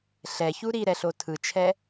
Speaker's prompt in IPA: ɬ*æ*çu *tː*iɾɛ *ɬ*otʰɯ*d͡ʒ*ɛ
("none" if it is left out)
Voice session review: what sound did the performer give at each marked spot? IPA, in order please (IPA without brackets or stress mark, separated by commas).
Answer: ɛ, ɾ, ɬ, t͡ʃʰ